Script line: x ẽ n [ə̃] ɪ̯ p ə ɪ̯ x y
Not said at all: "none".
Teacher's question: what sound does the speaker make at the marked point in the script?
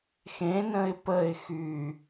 ə̃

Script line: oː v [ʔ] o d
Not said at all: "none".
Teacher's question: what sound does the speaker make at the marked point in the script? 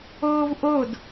ʔ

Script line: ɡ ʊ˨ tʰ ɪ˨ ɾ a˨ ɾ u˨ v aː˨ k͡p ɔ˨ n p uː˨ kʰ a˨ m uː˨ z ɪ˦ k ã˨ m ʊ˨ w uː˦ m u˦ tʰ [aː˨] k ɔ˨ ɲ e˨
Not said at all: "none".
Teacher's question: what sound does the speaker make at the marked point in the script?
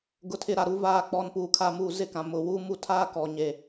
aː˦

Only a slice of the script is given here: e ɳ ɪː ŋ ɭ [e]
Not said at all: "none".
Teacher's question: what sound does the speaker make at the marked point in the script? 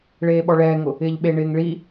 i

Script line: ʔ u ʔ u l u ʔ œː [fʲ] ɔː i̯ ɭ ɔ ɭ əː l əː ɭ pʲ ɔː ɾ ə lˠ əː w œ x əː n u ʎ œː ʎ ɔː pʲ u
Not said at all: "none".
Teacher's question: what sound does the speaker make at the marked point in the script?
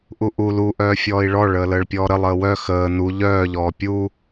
fʲ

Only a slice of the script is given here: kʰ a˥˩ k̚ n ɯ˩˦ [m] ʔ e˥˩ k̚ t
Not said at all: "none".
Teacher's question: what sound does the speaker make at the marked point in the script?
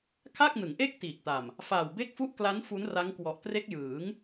ŋ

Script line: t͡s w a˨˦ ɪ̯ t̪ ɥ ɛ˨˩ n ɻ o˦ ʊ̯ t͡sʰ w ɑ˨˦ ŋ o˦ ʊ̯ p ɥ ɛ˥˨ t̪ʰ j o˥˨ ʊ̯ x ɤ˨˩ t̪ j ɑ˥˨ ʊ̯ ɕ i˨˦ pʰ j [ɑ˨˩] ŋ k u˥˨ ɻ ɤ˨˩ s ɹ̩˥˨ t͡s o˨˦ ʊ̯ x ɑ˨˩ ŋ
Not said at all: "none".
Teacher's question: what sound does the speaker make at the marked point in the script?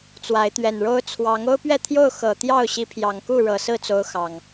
ɑ˨˩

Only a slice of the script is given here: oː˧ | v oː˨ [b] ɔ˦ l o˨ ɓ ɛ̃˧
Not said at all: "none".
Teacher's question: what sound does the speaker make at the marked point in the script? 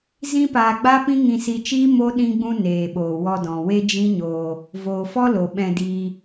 f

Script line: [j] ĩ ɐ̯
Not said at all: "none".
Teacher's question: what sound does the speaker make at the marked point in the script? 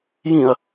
j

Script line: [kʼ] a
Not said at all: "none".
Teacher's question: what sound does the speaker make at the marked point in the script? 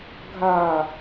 ɡʱ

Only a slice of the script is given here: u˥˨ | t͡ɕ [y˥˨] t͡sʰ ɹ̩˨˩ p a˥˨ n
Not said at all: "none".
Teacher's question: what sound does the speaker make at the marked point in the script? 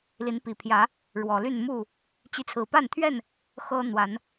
y˨˦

